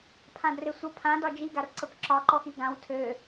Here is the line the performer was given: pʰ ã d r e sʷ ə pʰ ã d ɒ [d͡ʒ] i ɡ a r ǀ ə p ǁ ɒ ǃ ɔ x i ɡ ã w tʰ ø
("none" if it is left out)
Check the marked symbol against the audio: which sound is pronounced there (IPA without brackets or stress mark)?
d͡ʒ